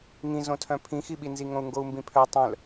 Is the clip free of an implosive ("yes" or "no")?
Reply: no